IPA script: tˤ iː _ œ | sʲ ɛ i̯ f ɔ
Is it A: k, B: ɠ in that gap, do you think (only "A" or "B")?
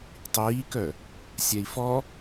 A